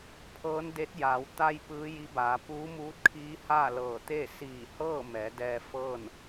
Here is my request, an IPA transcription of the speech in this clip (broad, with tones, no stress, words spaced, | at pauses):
pʰɤː˧˥nde˧˥t̚ jaː˩˧w t̪a˧j pɯː˧˥ji˧˥baː˩˧ puː˧˥muː˧˥t̚kʰiː˧˥ haː˥˨lɤː˧˩t̪eː˥˨ siː˧˩hɤː˥˨ mɛː˩˧dɛː˧ fɤː˥˨n